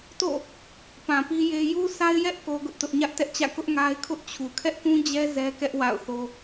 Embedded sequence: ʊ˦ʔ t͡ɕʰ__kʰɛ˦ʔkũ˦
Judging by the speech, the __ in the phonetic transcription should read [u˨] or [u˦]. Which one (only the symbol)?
u˨